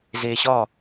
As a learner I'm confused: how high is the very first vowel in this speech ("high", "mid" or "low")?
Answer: mid